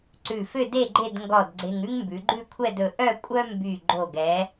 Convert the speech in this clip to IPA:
ǀʉ˧˩fø˥˧de˥˧ ɡ͡ǃe˥˧dŋɡɔ˧˩d ɡ͡ǀe˧ŋ ʉ˥ŋmbʉ˩˧ɡ͡ǃʉ˥˧kʷʰɛ˥˧d ɵ˧ʔœ˥˧ kʷʼœ˥mby˧˩ ɡ͡ǃo˧˩ɡɛ˩˧

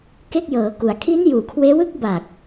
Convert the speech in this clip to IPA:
ke˥˩k̚jɤː˩˦ku˩˦a̯ kʰi˦˥n juː˨˩kʰweː˦˥wɯ˥˩k̚ ba˨˩k̚

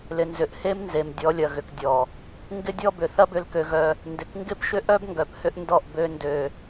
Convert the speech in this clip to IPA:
lɪ˨nzʏ˨ʔhe˦m nze˨mdʲɔ˨˦lʲɐ˨ ɣʏ˨kdʲɔ˨ | ŋɡɪ˦dʲɔ˦bʏ˨ θɐ˦bʏ˨lkø˨ ɣœ˦ | ndɪ˨kŋɡɪ˦pʃʏ˦ʔœ˦b ŋɡœ˨phʏ˦ʔ ndɔ˦˨ʔbø˦ ndø˦

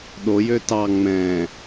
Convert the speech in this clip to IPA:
ɗojø tɑ ŋ͡mɛ̃

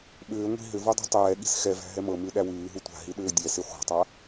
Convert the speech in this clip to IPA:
ɓʏː ŋʷi̤ ɦʏvu dˤṳtˤɛːɠi̤s xɛvæ̤ ɦɛmɤmʉ ɗæwʉːɦu tʷa̤ɦi ɗʏːdʲɛsi χʷa̤tˤa

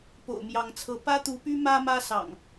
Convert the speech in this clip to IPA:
po̰˨˩ʊ̯mjɑ˨˦ŋt͡sʰɤ˨˦ pä˦t̪u˨˦py˦ mä˦mä˦sɑ̰˨˩ŋ

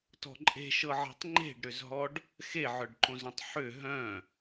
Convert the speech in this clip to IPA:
tɔ̤ǃʼe̤ʃɤʕe̤tˤ ŋ͡ǃe̤ɖɾʏzɦɔɖ | xeʕœɖǃõzœ̃tˤ ħʏ ɦœ̃

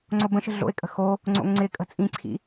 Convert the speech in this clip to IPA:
ŋ͡ǀobə̃ʃə̤ ɮo̰ɪ̯kʼə̤ xo | ŋ͡ǀo̰ŋŋ͡ǀɪkʼə̤ t͡sʼĩǀʰḭ

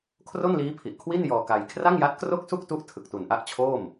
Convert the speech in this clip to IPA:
kʰro˥˩nliː˦˥ pʰi˨˩ʔkʰwi˥˩n jɔː˧ka˧j kʰra˥˩ŋja˦˥t̚ kro˥˩k̚su˥˩k̚tu˦˥ʔ tʰɯ˨˩k̚tu˨˩nʔa˥˩ʔt͡ɕʰoː˥˩m

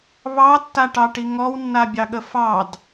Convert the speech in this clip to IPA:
βɑtːaʈɑʈi ŋɔwnːabʲɑɠə fɑd

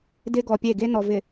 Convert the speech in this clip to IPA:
dɪ˦ɡɔ˨pʲe˦˨ ɡe˦ nɔ˨vɪ˨

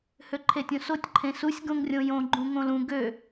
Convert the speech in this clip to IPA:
høǃʰetʲõsotʲ ǃʰẽsusʲ ɡõŋrʲõjõ ɡ͡ǃũŋõlũ ɡø

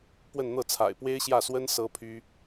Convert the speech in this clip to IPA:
pwə˥˧nn̪ɤ˥˩t͡sʰa̰˨˩ɪ̯ pwe˥ɪ̯ɕjä˥˩swə˥n sɤ˥pʰy˥

